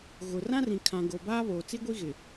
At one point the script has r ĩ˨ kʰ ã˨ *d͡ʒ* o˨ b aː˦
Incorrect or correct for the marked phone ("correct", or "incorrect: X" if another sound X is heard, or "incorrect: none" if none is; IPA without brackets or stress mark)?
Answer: incorrect: ɡ